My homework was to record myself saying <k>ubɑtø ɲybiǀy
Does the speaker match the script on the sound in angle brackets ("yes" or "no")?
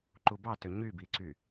no